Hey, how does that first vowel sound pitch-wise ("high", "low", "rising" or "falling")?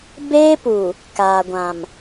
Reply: high